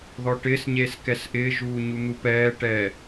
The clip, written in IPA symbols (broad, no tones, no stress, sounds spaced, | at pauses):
ð ɔ ʈ ɪː s ɲ eː s k ɛ s ʔ ɪː ʒ uː ɲ u n̪ u p ɛː ʈ ɛː